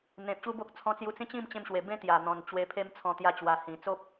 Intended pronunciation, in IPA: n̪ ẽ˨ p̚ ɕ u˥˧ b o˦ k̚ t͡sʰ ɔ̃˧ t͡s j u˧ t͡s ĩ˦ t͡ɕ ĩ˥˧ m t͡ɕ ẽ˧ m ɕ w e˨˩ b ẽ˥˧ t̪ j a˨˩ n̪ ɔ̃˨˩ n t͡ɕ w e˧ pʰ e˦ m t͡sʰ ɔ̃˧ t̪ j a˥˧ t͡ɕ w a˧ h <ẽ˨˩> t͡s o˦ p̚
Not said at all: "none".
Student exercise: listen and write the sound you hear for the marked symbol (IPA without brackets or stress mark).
ĩ˨˩